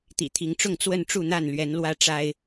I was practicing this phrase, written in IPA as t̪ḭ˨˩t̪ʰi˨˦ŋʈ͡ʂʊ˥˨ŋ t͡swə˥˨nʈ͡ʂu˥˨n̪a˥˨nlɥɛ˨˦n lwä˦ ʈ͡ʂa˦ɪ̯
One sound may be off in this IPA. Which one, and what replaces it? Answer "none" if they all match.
none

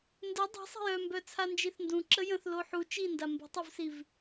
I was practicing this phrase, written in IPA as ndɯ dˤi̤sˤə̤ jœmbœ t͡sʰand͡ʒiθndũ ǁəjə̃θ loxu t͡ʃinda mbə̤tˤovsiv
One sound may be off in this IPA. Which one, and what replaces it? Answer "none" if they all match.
x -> ħ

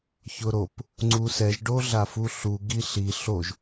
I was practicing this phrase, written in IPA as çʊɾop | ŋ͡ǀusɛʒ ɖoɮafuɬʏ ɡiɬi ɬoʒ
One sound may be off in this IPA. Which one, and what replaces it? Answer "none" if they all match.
ʏ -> u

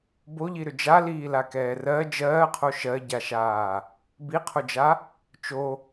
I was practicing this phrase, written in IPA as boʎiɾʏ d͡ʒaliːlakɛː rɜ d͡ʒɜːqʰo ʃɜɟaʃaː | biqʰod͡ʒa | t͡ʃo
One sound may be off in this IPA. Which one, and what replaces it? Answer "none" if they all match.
none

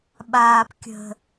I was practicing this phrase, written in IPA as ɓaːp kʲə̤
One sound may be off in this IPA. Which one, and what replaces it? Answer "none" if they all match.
none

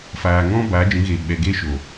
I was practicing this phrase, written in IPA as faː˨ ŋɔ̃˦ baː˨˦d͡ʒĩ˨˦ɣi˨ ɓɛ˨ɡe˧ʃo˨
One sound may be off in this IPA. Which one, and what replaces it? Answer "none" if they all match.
i˨ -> e˨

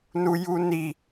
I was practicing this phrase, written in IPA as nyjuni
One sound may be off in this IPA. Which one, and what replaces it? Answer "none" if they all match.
y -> u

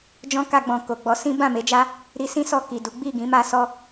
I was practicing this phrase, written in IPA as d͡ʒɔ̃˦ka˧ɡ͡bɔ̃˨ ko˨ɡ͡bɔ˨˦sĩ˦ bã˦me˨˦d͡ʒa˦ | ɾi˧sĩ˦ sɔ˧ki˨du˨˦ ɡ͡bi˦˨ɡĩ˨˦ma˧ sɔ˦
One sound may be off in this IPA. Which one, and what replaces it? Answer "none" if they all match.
ã˦ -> ã˦˨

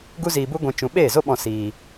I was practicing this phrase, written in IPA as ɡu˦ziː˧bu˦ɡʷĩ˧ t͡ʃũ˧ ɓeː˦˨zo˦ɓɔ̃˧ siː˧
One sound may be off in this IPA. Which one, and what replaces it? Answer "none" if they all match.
none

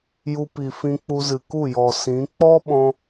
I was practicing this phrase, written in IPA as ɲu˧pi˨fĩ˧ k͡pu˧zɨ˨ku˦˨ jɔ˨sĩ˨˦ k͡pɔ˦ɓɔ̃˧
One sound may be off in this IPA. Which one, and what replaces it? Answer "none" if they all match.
ɲ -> j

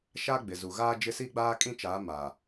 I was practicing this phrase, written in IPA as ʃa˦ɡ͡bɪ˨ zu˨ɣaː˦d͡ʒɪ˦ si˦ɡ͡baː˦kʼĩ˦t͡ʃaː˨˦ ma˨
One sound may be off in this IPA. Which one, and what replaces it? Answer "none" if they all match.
none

